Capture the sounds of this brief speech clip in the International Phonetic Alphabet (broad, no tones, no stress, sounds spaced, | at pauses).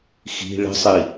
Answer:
x i̤ ɭ ə̤ sˤ i